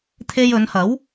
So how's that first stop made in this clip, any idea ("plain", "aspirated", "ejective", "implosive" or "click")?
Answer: aspirated